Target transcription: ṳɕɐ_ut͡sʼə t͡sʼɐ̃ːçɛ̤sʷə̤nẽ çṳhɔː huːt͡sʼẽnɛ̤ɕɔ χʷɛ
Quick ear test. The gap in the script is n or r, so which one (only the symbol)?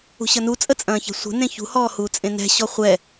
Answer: n